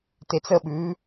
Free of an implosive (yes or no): no